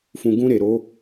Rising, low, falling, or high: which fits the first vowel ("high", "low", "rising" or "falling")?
low